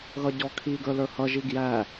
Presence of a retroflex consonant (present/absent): absent